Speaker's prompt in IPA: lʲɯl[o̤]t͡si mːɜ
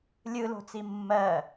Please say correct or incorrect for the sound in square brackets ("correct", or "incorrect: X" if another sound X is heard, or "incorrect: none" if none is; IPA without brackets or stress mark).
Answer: correct